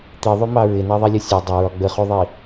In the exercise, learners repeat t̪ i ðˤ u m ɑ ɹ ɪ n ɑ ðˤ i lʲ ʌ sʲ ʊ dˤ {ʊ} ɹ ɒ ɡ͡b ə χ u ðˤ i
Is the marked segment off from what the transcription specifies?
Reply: no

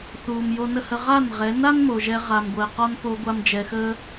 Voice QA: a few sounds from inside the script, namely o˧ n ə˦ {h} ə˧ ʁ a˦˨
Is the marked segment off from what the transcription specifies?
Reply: no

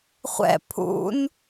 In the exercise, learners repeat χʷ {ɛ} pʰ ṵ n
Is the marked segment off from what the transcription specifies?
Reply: yes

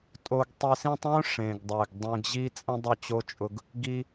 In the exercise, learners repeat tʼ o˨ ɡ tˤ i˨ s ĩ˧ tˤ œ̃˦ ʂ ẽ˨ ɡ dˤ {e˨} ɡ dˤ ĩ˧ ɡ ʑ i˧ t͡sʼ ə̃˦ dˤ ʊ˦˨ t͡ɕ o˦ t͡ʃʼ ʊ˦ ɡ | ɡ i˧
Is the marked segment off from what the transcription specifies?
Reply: no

